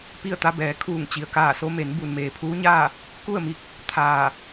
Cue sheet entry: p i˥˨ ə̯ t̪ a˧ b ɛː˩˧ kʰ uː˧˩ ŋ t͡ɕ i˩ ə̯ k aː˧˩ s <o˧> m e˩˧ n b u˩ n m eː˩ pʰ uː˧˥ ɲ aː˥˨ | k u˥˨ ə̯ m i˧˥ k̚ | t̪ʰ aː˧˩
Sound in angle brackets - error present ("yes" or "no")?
no